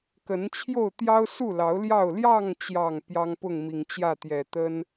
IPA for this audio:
kə˨˦nt͡ɕʰjo˥˨ʊ̯ t̪jɑ˦ʊ̯su˥˨lɑ˨˦ʊ̯ ljɑ˥˨ʊ̯ ljɑ˥˨ŋt͡ɕjɑ˨˩ŋ pjɑ˦ŋpʊ˥˨ŋmi˨˩ŋt͡ɕjä˥˨ t̪jɛ˨˩t̪ə˦n

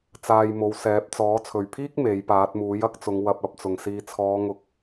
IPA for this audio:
t͡saː˧jmo˨˧w sɛː˨˥p̚t͡sɔː˨˥ t͡sʰɵ˨˩ɥpʰiː˥k̚ me˨˥jpaː˨˥t̚ muː˨˥jɐ˥k̚t͡sʊ˨˧ŋ wɐ˧p̚ɐ˧p̚t͡sʊ˨˩ŋ siː˨t͡sʰɔː˨˧ŋʊ˨˥k̚

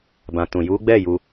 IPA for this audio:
bã˨tũ˨ ju˨˦ɡ͡bɛ˦˨ ju˧

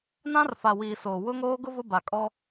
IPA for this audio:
nã˦r fa˨wiː˨ soː˨ wʊ˦ŋoː˦ ɡʊ˦ vʊ˦ba˨kʼɔ˦

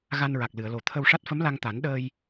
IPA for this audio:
ɣa˧nɹa˨˩k̚ lɨ˨˩˨ə̯lo˨˩ t̪ʰə˧wʂa˦˥t̚ fə˧˥mla˧ŋt̪a˨˩˦n ɗəː˧j

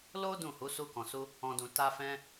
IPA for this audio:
lo˦ dũ˦˨hu˨˦ su˧kɔ̃˨su˧ | ɔ̃˨dũ˨ ta˧fɛ̃˧

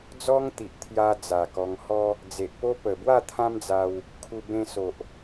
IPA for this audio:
d͡zɔ˦ŋt̪i˨ʔt̪ʰja˧ d͡za˨˩kɔ˧ŋhɔ˦ | d͡ze˨ʔpo˦ pə˨˩bwa˥˧ t̪ʰã˦md͡za˧w | kʰu˧ bẽ˧so˨ʔ

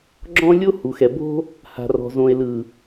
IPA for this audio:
ɡ͡ǁɔ̃˦lʲo˦hu˨xɛ˨ bo̤˦ | ha̤˨rɔ̤˨ zõ˨e̯lɯ˨

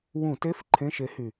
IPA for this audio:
wũ˧˩˧te˧˥˧f ǃʰẽ˧˥˧ʃe˨˥hy˨˩

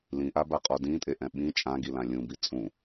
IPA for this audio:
lĩʔabaqʼɔ dĩtʼeʔɛ̃ ɓĩ t͡ʃʼãɡilã lʲũbi t͡sʼũ

